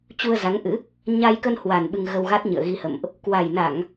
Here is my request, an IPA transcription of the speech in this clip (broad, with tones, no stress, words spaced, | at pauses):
t͡ɕu˧ə̯za˨˦ŋʔɨ̰˧˥ | ɲa˧jkə˧nhwa˨˩n ɓɨ˧ŋ ɣə˧wɣa˦˥t̚ɲɨ̰˧˨ə̯ ɣi˧hə̰˧˨mʔ | kwa˨˩jna˧˩˨ŋ